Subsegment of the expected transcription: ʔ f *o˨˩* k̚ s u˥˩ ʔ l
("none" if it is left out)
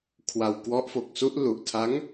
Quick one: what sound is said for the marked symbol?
o˨˩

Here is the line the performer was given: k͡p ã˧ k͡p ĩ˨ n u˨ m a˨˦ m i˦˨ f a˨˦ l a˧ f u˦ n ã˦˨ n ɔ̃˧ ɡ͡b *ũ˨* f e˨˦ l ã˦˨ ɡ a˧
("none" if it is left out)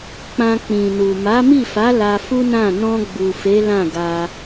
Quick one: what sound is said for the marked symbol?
u˨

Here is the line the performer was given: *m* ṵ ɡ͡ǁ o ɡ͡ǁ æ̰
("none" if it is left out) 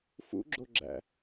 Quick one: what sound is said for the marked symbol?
f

